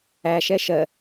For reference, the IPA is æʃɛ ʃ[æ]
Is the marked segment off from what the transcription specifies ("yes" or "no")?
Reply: yes